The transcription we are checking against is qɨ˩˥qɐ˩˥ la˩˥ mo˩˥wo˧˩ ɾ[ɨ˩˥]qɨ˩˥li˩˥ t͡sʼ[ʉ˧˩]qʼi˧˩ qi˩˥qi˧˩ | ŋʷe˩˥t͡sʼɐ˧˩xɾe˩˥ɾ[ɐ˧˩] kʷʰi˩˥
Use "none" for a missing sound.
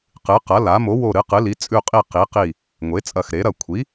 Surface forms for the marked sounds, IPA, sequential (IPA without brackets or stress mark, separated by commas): ɨ˩˥, ʉ˧˩, ɐ˧˩